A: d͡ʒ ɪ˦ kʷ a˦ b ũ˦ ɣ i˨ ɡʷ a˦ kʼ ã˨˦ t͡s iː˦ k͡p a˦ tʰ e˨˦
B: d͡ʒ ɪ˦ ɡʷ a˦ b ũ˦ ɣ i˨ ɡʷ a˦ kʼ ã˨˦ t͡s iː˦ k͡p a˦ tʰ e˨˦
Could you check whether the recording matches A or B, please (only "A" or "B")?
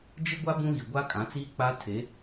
B